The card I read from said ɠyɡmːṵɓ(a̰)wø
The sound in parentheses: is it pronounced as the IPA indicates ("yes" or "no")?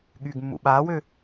no